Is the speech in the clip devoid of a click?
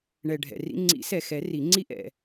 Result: no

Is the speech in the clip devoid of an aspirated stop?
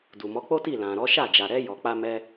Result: yes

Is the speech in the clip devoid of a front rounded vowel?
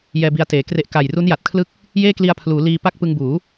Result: yes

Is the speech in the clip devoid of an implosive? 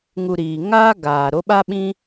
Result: no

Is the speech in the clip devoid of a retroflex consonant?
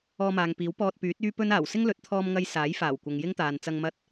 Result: yes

